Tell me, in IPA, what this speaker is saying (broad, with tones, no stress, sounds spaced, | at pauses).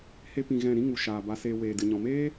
h e˦ p ĩ˧ ɣ ɛ̃˦˨ ɾ ĩ˦ ŋ u˨ ʃ aː˨ b a˧ s eː˧ w eː˨ d ɨ˨ ɲ ɔ̃˨ m eː˦